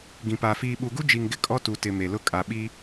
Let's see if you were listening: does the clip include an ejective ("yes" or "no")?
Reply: yes